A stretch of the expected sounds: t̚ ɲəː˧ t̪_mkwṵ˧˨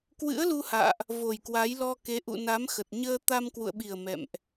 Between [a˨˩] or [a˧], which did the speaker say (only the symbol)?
a˧